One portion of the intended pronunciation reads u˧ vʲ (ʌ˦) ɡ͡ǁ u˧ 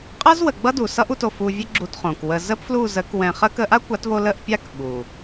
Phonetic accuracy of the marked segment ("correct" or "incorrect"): incorrect